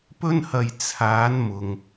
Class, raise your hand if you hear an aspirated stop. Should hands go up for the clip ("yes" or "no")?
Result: yes